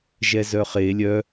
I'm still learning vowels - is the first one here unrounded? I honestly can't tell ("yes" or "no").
yes